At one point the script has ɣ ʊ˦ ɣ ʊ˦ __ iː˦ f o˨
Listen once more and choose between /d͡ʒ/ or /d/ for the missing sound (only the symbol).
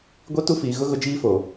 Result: d͡ʒ